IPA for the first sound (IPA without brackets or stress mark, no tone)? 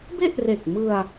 b